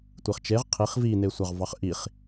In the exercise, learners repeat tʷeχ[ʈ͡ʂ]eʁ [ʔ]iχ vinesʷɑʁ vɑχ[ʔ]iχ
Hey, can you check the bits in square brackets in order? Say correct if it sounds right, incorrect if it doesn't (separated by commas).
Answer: incorrect, incorrect, correct